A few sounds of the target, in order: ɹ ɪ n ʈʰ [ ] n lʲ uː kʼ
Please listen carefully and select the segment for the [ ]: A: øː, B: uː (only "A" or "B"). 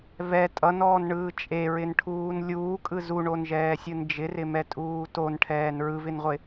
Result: B